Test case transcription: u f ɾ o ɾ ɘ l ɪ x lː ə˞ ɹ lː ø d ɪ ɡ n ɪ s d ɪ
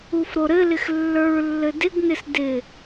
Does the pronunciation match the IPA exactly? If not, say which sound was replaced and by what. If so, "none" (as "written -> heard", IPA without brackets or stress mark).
ø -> ɘ